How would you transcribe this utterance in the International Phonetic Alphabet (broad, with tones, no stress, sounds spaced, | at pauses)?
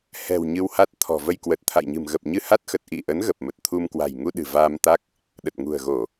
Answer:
h ɛ̤˨˩ w ɲ ɨ˧ w h a˦˥ t̚ t̪ʰ ɔ̤˨˩ v ə˧ j k w ə˨˩ t̚ t̪ʰ a̰˧˨ j ɲ ɨ̤˨˩ m ɣ ə˨˩ p̚ ɲ ɨ˧ h a˦˥ t̚ x ə˨˩ t̚ ʔ ḭ˧˨ ʔ ə˨˦ n ɣ ə˨˩ p̚ m ə˨˩ t̚ t̪ʰ u˧ m k w a̤˨˩ j ŋ u˧ ɗ ɨ̤˨˩ v aː˧ m t̪ a˦˥ k̚ | ɗ ə˨˩ t̚ ŋ ṳ˨˩ ə̯ ɣ o˧˩˨